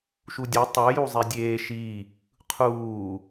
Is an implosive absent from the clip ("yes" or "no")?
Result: yes